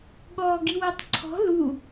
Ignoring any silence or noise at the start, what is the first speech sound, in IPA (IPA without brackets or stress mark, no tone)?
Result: ɠ